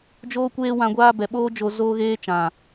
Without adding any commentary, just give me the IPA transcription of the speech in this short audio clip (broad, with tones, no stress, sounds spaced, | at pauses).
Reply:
d͡ʒ oː˦ kʷ eː˦ w ã˧ ɡʷ aː˦ b ɛ˨ ɓ oː˦ d͡ʒ o˧ z oː˦ ɣ eː˦ t͡ʃ ã˨